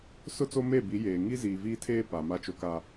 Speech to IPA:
s ʊ˦ t͡s o˦ m e˦˨ b i˨˦ j eː˨ ŋ i˦ z iː˨ v iː˦ tʰ eː˦ p a˨ m a˦ t͡ʃ o˦ k a˦

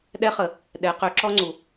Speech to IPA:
ɗ ɛ˧˥ χ ə˩˧ | ɗ ɛ˩˧ q ø˩˧ ǁ ɔ˧ ŋ͡ǀ u˩

